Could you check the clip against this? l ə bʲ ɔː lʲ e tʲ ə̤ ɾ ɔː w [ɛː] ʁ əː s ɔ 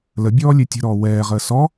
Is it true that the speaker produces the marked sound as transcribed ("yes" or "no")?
yes